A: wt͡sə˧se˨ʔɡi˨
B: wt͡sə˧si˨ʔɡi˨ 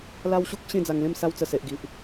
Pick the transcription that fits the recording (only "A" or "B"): A